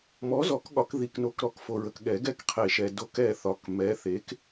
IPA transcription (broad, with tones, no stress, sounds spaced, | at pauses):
m ɔ˨˥ z ɔ˨˩˦ k ɠ ɒ˨˩˦ k ð i˨ k n o˨˥ k ɾ ɔ˨˩˦ k f o˨ ɹ ə˨ k ɠ ɛ˨˩˦ ɡ ɛ˦˨ k qʰ e˨˩˦ ʃ ɛ˨ d o˨˥ k ɛ˦˨ θ ɒ˨˥ k m ɛ˨˥ θ e˨˥ k